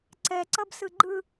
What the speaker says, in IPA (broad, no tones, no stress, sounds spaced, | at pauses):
ǀ ɛ ǀ ʌ b s ɯ ɡ͡ǃ ɯ